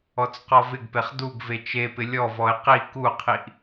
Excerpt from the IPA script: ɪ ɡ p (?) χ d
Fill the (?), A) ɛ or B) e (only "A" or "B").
B